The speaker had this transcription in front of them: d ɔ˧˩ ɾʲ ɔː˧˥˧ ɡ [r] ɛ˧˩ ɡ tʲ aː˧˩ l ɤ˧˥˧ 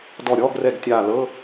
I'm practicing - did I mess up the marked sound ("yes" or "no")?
no